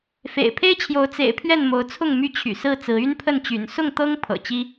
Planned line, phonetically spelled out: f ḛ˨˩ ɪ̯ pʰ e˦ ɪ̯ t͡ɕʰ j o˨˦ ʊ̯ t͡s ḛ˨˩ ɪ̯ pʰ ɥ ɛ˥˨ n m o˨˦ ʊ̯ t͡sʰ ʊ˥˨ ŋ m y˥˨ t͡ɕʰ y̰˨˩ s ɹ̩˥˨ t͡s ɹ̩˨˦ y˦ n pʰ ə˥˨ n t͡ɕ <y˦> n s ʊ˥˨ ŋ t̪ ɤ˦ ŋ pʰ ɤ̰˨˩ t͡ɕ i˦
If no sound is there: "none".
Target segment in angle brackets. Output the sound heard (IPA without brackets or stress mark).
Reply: y̰˨˩